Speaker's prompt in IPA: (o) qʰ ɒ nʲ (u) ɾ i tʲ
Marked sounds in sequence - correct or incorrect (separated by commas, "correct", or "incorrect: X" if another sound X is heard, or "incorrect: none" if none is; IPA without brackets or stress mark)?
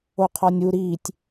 correct, correct